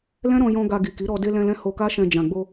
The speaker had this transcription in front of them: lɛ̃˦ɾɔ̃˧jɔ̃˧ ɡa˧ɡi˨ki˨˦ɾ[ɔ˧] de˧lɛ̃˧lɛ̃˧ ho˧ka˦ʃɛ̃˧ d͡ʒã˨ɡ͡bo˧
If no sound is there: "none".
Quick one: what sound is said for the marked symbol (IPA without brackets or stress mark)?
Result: ɔ˧